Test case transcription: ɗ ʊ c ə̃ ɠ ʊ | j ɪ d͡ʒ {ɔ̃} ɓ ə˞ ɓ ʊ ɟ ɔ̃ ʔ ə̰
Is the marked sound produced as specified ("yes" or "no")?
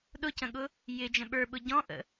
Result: no